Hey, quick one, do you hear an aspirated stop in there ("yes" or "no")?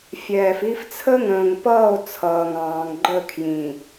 yes